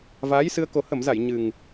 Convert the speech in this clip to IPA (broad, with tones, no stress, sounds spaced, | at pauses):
v aː˨˦ j s ɨ˧ ə̯ k o˨˩ h ə˧˩ m z a˧˩ j ɲ ɨ˨˩ ŋ